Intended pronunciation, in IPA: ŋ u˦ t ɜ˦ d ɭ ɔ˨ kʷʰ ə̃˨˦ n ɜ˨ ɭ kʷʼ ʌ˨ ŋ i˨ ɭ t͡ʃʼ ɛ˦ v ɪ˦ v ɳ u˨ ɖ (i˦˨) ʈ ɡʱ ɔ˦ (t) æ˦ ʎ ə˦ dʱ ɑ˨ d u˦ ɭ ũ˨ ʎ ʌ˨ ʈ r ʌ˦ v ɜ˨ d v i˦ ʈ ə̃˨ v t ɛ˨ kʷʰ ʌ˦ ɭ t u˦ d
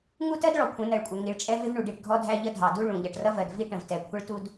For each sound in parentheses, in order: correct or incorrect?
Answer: correct, incorrect: dʱ

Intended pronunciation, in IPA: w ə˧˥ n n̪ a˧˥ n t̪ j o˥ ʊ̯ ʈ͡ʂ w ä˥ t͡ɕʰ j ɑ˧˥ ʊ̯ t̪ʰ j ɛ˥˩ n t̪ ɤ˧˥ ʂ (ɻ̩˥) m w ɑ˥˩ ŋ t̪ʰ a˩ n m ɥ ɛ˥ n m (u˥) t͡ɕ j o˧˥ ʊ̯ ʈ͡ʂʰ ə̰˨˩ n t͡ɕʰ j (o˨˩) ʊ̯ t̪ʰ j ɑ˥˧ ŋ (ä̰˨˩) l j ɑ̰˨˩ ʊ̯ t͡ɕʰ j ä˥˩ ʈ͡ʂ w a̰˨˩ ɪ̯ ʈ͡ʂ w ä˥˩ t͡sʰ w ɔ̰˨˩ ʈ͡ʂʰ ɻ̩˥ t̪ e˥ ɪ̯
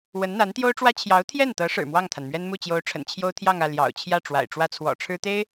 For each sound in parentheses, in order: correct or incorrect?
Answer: incorrect: ɻ̩˨˩, incorrect: u˥˩, incorrect: o˥, incorrect: ä˥˩

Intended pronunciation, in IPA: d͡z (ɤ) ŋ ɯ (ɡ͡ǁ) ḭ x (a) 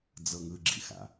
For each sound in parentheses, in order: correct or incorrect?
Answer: correct, correct, incorrect: a̰

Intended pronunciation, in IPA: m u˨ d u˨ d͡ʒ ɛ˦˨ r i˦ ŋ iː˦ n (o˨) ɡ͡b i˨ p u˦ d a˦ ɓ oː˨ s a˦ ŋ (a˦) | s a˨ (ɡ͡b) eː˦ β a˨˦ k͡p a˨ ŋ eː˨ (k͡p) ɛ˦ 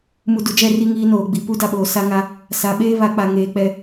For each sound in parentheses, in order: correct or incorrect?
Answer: incorrect: oː˨, correct, incorrect: ɓ, correct

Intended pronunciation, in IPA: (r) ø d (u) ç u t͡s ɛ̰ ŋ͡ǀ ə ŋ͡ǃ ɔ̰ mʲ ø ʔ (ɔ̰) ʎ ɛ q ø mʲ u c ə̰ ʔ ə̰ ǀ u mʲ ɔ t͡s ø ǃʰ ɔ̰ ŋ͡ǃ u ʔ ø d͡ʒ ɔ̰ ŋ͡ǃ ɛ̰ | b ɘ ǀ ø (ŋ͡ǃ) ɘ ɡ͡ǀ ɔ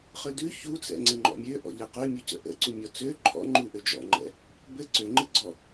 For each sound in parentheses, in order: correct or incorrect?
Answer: incorrect: χ, incorrect: ʉ, correct, correct

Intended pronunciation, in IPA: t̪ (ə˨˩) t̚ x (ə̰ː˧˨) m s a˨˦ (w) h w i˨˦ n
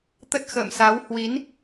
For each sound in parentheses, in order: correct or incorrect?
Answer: incorrect: ə˦˥, correct, correct

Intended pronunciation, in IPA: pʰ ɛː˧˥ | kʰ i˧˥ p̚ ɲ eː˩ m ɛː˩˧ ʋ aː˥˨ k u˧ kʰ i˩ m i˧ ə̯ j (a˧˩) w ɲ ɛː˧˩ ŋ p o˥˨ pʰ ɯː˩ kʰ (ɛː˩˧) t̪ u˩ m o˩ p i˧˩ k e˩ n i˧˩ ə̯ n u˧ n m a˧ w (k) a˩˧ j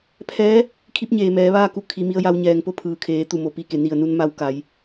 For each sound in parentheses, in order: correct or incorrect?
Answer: incorrect: a˧, incorrect: eː˩˧, correct

